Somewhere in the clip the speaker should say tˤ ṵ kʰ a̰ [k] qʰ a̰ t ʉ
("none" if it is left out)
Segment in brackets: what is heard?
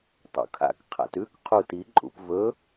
k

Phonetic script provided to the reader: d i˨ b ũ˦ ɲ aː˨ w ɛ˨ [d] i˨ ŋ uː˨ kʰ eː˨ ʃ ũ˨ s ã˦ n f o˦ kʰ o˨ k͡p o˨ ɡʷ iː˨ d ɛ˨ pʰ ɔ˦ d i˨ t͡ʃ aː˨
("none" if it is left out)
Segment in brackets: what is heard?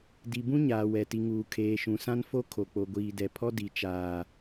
t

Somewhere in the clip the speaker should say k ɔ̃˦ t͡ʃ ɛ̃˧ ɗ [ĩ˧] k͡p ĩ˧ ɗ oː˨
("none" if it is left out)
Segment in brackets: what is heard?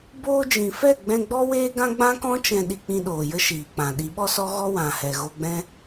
i˧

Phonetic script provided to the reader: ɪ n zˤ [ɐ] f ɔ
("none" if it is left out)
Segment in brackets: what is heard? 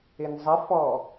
ə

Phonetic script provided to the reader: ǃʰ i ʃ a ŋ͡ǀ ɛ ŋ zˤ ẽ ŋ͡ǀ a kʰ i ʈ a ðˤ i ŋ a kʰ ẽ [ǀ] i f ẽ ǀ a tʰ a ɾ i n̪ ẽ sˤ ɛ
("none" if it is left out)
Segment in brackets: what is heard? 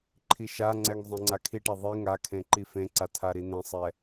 ǃ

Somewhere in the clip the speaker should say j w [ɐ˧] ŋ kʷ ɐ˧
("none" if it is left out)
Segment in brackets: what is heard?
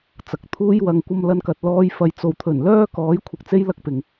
ɐ˧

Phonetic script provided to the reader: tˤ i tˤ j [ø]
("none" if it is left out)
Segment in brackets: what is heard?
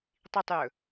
ɵ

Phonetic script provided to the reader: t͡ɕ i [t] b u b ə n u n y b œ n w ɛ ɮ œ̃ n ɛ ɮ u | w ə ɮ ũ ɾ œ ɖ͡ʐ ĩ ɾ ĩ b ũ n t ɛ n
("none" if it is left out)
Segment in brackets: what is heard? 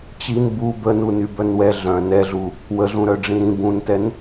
n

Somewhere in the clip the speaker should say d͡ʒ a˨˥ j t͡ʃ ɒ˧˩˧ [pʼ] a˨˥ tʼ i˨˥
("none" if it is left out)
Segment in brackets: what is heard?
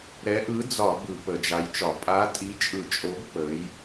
pʼ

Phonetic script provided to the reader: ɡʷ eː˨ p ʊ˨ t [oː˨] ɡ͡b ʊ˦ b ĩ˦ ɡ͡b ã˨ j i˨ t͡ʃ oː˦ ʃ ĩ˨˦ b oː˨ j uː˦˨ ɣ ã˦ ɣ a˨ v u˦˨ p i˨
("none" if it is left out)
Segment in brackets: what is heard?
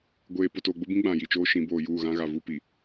oː˨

